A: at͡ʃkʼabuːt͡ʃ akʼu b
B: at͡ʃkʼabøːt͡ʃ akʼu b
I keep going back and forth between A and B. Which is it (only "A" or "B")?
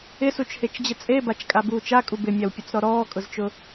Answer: A